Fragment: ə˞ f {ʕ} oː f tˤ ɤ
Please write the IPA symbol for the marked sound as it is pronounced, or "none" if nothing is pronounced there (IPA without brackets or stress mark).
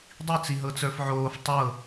ʕ